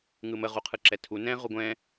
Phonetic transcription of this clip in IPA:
ŋɯmə ʁuqʰɯǁɛtʰu nɛ̃ ʁuɡʷɛ̃

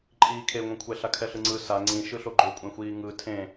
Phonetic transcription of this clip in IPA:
ǃʼiːkʰeŋʷẽkʷʰɛ ɬakʰɛɬɯŋ͡ǀɯ sa ŋ͡ǀĩ ʃɯɬoɡ͡ǃokʷʼẽ xʷiːŋɯ tʰẽ

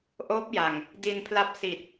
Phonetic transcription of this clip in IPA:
ʔoː˦˥p̚ja˨˩ŋ | di˧npʰla˦˥p̚ si˨˩t̚

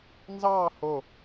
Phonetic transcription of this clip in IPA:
nzɑː ho

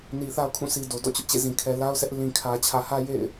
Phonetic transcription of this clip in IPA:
ni˨θa˦ʊ̯kʰũ˦˨sʰi˨ do˨ dɔ̰˦˨t͡ɕʊ˦ʔt͡ɕḛ˦˨ zĩ˨kʰɛ˨la˦ʊ̯sʰɛ˦ʔ lĩ˨kʰä˨ t͡ɕʰä˨hä˦ jḛ˦˨ɪ̯

